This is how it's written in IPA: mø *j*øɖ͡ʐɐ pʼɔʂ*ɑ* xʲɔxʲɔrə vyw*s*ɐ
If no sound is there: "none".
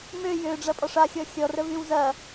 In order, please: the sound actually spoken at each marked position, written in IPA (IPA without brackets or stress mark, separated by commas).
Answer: j, a, z